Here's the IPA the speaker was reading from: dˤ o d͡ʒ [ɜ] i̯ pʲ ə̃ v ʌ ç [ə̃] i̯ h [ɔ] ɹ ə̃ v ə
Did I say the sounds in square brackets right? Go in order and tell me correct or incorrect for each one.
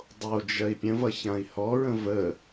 correct, incorrect: ã, correct

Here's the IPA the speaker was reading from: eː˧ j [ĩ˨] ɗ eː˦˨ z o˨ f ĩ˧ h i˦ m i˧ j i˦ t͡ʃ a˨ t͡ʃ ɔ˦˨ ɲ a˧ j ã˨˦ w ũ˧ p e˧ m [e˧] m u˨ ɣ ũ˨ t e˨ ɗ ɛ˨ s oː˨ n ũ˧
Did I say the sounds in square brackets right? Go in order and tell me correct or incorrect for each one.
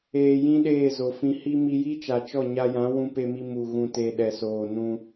incorrect: ĩ˦, incorrect: i˧

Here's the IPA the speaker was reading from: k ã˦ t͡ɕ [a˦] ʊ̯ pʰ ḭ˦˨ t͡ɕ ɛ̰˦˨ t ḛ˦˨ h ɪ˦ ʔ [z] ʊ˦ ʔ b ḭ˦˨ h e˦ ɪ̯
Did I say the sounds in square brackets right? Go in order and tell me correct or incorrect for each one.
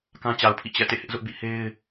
incorrect: a˨, correct

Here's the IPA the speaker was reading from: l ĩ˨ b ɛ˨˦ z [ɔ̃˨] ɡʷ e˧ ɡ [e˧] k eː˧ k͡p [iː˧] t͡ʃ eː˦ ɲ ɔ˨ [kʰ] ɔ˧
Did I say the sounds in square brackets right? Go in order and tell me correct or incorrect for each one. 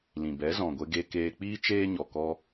correct, correct, incorrect: iː˦, incorrect: k

